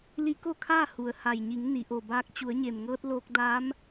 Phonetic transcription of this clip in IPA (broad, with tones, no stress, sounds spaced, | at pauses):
l i˧˥ k o˥˨ kʰ aː˥˨ h u˩ ə̯ h a˩ j ɲ i˩˧ ŋ n i˩˧ ʔ o˩ b aː˧ k̚ t͡ɕ u˩˧ ə̯ ɲ e˩ m ŋ ɤː˧ t̚ l oː˧ k̚ d aː˧˥ m